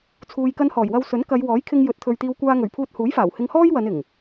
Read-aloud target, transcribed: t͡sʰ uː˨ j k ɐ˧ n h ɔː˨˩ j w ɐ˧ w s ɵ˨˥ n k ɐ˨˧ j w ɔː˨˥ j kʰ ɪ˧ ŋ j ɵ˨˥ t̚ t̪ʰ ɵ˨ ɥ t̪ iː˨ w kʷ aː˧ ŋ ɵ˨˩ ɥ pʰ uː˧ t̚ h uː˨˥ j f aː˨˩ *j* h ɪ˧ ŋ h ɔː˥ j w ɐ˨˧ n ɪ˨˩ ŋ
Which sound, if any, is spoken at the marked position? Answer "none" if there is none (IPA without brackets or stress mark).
w